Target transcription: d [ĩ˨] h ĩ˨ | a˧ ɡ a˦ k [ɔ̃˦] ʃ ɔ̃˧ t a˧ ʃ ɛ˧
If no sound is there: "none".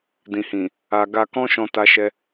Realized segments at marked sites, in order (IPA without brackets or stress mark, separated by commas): ĩ˨, ɔ̃˦